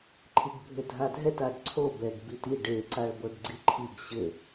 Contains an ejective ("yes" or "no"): no